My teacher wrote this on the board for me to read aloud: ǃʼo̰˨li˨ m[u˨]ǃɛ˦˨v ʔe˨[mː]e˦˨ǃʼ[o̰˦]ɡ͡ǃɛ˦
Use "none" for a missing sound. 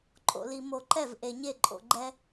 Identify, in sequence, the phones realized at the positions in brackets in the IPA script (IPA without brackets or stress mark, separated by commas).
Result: o˨, ɲ, o̰˨